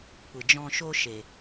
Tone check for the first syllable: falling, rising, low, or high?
low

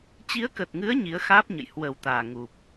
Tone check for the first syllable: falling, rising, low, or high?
rising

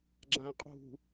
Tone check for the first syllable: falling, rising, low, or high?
low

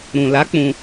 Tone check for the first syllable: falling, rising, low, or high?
low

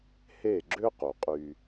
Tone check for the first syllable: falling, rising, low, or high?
falling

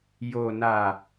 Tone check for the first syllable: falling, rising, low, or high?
low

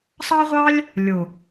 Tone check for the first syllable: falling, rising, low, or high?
high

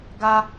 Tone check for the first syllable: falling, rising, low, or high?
high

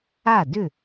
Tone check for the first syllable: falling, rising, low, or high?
falling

